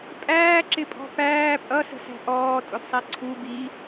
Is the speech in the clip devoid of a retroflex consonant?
yes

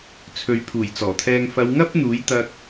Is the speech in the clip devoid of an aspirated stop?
no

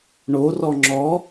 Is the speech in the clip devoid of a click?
no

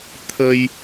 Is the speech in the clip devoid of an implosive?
yes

